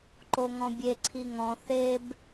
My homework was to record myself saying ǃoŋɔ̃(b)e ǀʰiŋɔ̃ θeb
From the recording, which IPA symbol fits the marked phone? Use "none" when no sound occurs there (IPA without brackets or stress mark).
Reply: bʲ